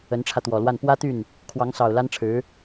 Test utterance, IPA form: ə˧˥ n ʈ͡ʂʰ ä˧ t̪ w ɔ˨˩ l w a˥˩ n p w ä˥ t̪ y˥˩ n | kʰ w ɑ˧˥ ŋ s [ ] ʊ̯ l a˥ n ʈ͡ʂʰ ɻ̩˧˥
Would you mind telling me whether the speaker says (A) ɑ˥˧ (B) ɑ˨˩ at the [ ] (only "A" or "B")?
B